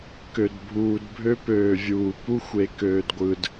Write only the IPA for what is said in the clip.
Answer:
k ø˨ d bʱ uː˨ d bʱ ø˦ p øː˨ vʲ uː˨ p u˦ xʷ e˨ k øː˨ d ɡʷ ɯ˨ d

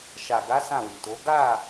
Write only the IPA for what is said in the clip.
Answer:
ʃ a˨ ɡ a˨˦ s ã˦˨ w i˨ t o˨˦ ɡ a˦˨

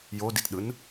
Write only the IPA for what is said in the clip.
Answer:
j o d i t ɗ ɯ n

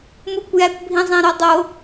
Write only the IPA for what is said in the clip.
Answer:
m u kʷ j æ kʷ bʱ ĩ zˤ ĩ ɾ o dˤ o

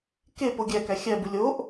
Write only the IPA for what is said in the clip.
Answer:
k e p o ɡʲ æ k æ xʲ æ b u lʲ o ʔ

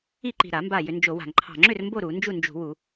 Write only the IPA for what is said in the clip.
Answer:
i˥˨ ǃ i̤˧˩ ɾ a˧˩˧ m b a˧˩ j ʏ˧˩˧ n d͡ʒ o˧˩˧ w a̤˧˩˧ ŋ ǃʰ ɑ̤˧˩ ŋ͡ǁ ʏ˥˨ r m b o˥˨ ɾ u˧˩˧ n d͡ʒ u˥˨ n d͡ʒ ṳ˧˩˧ w u˧˩˧

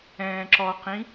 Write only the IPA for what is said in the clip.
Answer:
ɛ̃ː ǁ ɔ q ĩ

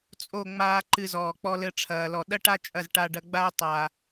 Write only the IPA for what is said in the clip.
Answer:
t͡sʼ o˦˨ ŋ͡m aː˧ ǃ ɨ˧ z ɔː˨ k͡p ɔ˧ l ɘ˧ ʈ͡ʂʰ ɐː˨ l ɔ˨ ɗ ɐ˦ ʈ a˦ t͡ʃʼ ɐ˦˨ z ʈ a˧ ɖ ɐ˧ ɡ͡b a˦ ʊ̯ tˤ a˨

